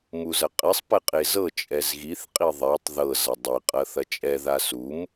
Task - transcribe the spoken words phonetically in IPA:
m u z ɐ qʼ ɛ sˤ p ɛ qʼ e z ɤ t͡ʃʼ ɛ z ɣ i θ qʼ i ðˤ ɛ tˤ ð ɤ z ɐ dˤ i qʼ ɐ θ ɐ t͡ʃʼ ɛ ð a s u m

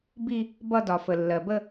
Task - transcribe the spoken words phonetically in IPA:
b i˥˧ | b ʌ˥˧ d ɒ˩ f ə˩ lː ɜ˩ b ə˥˧

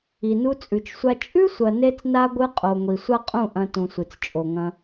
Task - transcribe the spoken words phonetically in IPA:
i˨ n u˧ t͡sʼ ʉ˨ t͡ʃ sʷ a˧ t͡ʃʼ ʉ˦ sʷ ɐ˨ n e˧ t͡s n a˧ ɡʷ ɨ˧ qʼ o˨ ŋʷ i˨ sʷ a˦ qʼ ũ˦˨ ʔ ɐ̃˧ t ũ˨ sʷ ɨ˨ t͡s t͡ʃʼ o˨ ŋ ɐ̃˧

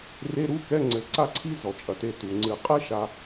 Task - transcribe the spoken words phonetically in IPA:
r e˧˥˧ ɾ u˧˥˧ k ɛ˧˥˧ ŋ͡ǀ ɘ˨˩˦ ǀ a˥ ǀʰ i˥ z ɔ˩ t͡ʃʼ ɐ˩ t e˧ t u˩ ŋ͡ǀ ɨ˨˩˦ qʼ e˥ ʃ a˧

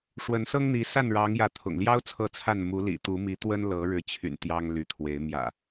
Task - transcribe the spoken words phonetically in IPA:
ʂ w ə˨˦ n s ɤ˦ ŋ n̪ i˨˦ s a˥˨ n ɻ ɑ˨˦ ŋ j ä˨˦ t̪ʰ ʊ̰˨˩ ŋ l j ɑ˦ ʊ̯ t͡sʰ ɤ˥˨ t͡sʰ a˥˨ n m u˨˦ l ḭ˨˩ t̪ u˨˦ m i˨˦ t̪ w ə˦ n l ɤ˨˦ ɻ ɻ̩˨˦ t͡ɕʰ y̰˨˩ n t̪ j ɑ˦ ŋ l y˨˦ t̪ʰ w e˨˦ ɪ̯ m j ä̰˨˩

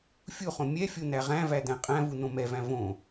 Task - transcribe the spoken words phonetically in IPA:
fʲ u χ õ mʲ ɛ fʲ o n̪ æ ʁ æ̃ v æ d̪ æ̃ qʼ æ̃ v u n̪ õ m ɛ v æ̃ v õ

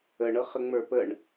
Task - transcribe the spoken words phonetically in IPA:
ə ɳ ɤ χ ə ŋ͡m ə˞ p ə ɳ

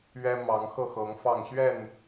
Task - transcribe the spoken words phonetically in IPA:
ɥ ɛ˦ m ɑ˨˦ ŋ x ɤ˥˨ x ɤ˨˦ ŋ f ɑ˥˨ ŋ ɕ ɥ ɛ˥˨ n

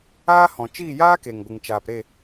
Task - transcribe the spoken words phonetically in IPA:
aː˦ h ɔ̃˨ t͡ʃ iː˦˨ j aː˦ k e˨ ŋ ɡʷ ɨ˨ ŋ t͡ʃ aː˨ p ɾ e˦˨

